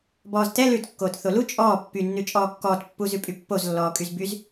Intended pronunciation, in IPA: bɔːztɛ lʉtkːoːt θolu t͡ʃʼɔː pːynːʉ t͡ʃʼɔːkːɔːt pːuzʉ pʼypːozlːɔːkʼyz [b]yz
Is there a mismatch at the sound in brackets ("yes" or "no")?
no